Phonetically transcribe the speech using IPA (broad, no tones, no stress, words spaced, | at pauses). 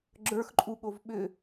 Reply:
ɡ͡ǁə˞xǃʼuɠov ɓʏ